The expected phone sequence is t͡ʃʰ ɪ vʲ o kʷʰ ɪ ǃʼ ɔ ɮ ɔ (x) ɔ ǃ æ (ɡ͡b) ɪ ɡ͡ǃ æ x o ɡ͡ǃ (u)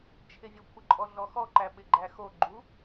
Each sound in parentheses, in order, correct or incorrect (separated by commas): correct, incorrect, correct